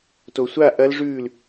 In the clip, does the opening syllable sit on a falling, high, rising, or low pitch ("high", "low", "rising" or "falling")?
low